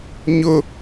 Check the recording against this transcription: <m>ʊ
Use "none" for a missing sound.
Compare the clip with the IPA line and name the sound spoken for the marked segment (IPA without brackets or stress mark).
ɲ